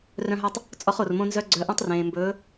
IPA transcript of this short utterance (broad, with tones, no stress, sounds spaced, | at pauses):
r œ̃˧ ɦ ɵ˧ tˤ | t͡sʼ ɔ˧ χ o˩ r m õ˧ n z œ˧ ɡ͡ǀ œ˩˧ ʔ õ˧ tˤ r ẽː˩ m b ɵː˩˧